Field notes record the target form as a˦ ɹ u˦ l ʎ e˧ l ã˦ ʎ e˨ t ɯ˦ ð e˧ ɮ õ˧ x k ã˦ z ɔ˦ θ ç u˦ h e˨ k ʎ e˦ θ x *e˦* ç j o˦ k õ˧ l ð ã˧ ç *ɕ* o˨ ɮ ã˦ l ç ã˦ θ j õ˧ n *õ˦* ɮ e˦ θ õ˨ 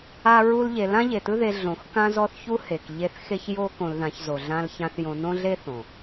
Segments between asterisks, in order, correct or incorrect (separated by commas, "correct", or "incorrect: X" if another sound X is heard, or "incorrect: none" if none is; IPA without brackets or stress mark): correct, incorrect: z, correct